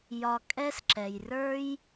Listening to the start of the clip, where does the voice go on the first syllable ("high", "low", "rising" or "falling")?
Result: low